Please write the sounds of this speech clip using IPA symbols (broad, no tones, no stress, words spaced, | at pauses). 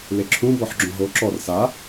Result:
leǁʰũ bɔħɡ͡ǁõɦo ǁɔr sa